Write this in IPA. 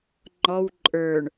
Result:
ŋ͡ǃɔw ǃʼə˞ɳ

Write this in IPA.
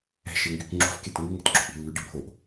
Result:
ɛ̤ʃeŋɡyk ŋ͡ǁo̤fket ŋuŋɛ̤tɡ͡ǁo̤ʔi̤ lːʉɖibʱoʔ

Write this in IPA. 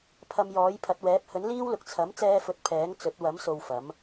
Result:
pʰɐ˨m jɔː˨˥jpʰɐ˨˥t̚wɛː˨˥p̚ hɵ˨˥nliː˥wlʊ˨˥k̚ t͡sʰɐ˨˥mt͡sɛː˧fɵ˨˥t̚ pʰɛː˨˥ŋ t͡sɵ˨˥t̚ wɐ˨˥mso˨w fɐ˨˥m

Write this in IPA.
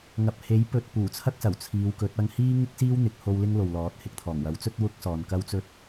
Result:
ŋɐ˧p̚ he˨˥j pɵ˧t̚ puː˨˩t͡sʰɐ˥k̚sɐ˨˩w t͡sʰiː˨˧w kɵ˨˥t̚ ɐ˧ŋhiː˥ŋɪ˥k̚ siː˥wn̪ɪ˨˥k̚ho˧w lɪ˥ŋlo˨wlɔː˨˥t̚ hɪ˧k̚t̪ʰɔː˨˩ŋ wɐ˨˥wt͡sɵ˥t̚ wʊ˥k̚sɔː˨n kɐ˥wt͡sɵ˥t̚

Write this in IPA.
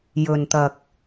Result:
jɵ˨nt̪ɐ˨k̚

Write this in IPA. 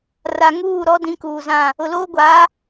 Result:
ra˨ ŋuː˦˨ ɾɔ˨˦ dĩ˨˦kuː˨zã˦˨ | ʊ˨loː˦ɡʷaː˨˦

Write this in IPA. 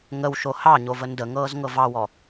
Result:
ŋəwʃo hɑɲo vəndəŋɤːz ŋɤvɑwɔ

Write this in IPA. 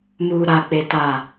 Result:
muː˨ɾa˨ k͡pe˨ ta˨

